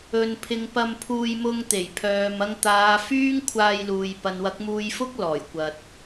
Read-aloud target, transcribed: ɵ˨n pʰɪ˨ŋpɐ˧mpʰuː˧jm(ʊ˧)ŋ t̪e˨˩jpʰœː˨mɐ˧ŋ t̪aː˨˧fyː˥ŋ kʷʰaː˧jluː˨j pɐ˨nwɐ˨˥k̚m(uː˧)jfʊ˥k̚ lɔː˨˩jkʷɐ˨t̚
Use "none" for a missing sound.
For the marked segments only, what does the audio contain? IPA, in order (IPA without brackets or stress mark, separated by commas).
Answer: ʊ˧, uː˧